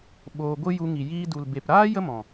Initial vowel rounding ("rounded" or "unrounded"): rounded